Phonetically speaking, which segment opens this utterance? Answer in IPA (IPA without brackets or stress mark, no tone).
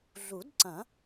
ɮ